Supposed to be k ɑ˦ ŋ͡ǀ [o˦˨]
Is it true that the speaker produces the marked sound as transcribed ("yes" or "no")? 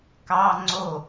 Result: yes